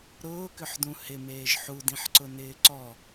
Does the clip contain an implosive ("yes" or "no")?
no